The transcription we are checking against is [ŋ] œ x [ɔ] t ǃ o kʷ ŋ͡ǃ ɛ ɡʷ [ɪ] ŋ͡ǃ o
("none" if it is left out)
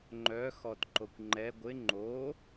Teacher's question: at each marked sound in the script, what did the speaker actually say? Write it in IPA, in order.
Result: ŋ͡ǃ, ɔ, ɪ

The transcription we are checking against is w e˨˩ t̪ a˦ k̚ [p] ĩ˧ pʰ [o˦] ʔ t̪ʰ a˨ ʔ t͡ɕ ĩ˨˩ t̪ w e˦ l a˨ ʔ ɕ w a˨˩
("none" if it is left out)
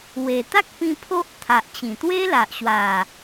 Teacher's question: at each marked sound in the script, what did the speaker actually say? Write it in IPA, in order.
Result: p, o˦

